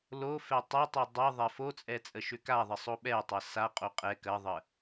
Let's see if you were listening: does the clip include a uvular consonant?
yes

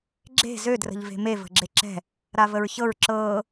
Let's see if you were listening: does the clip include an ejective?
no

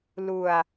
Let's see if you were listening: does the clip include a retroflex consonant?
no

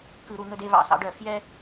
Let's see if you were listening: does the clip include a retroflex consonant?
yes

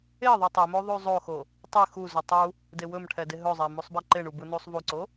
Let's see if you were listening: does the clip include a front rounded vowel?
yes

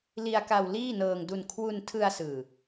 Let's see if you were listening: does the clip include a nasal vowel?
no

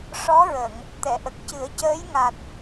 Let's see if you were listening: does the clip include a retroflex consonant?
yes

